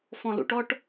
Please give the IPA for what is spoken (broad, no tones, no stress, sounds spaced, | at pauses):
f ɔ̃ l ṵ ʈ ɔ ʈ